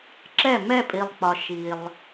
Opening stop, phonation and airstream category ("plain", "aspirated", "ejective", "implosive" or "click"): click